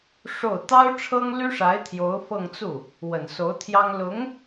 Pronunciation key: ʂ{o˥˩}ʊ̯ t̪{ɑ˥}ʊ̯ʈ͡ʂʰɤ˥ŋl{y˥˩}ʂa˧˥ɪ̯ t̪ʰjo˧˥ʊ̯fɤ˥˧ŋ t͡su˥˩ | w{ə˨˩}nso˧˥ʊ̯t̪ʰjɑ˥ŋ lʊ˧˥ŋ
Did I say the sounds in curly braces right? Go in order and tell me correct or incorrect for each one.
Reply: correct, correct, incorrect: y˥, correct

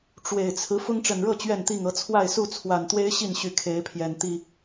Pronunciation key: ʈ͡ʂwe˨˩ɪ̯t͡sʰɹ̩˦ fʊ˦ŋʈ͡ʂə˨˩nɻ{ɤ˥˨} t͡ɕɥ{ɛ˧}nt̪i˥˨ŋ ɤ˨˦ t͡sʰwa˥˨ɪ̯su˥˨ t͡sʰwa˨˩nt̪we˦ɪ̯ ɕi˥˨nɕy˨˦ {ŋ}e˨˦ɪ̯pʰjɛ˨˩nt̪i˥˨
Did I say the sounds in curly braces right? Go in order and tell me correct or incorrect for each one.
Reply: correct, incorrect: ɛ˥˨, incorrect: kʰ

